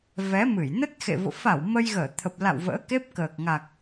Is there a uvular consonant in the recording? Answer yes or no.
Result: no